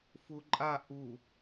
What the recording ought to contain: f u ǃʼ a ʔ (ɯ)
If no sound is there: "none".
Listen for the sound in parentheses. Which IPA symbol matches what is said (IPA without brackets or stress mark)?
u